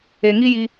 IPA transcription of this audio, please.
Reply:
e˨ ŋ i˦ j i˧

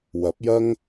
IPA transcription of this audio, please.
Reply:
w ɐ˨˥ p̚ j ɐ˥ ŋ

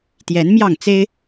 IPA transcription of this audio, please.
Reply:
t̪ j ɛ˨˦ n m j ɑ˥˨ ŋ t͡s e˦ ɪ̯

